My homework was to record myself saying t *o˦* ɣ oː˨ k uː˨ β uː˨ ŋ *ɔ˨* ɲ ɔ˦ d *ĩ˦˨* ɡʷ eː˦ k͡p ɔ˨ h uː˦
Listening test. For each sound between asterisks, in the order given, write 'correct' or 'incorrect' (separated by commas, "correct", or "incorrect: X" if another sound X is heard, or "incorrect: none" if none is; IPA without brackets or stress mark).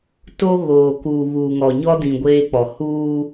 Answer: correct, correct, incorrect: ĩ˨